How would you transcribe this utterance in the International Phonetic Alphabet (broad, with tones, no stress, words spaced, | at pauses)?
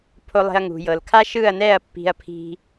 pʰo˧lˠe̤˧ɐ̯ŋṳ˨ jɤ˨l kʰa˦ʃɯ˦˨ɐ̯nɛ˦˨ɐ̯ pːi̤˧ɐ̯pʰi̤˧